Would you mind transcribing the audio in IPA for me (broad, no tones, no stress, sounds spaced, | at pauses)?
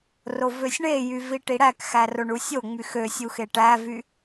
r o v ø sʲ ɳ e j y v i ʈ i ɽ æ k x æ r o ɳ u sʲ o ŋ͡m y x ø sʲ u x e ʈ æ v y